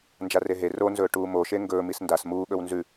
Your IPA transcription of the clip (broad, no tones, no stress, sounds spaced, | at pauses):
n d͡ʒ a r e ɦ e r o n z ɵː ʈ uː m o ʃ e ŋ ɡ ɵː m i s n d a s m uː ɠ ɵ w n z ʉ